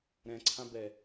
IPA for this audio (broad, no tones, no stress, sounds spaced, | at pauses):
ɾ ɛ̃ ǀʰ ã b ɛ